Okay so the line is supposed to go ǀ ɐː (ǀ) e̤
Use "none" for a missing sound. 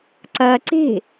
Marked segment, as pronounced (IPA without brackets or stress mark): ǀ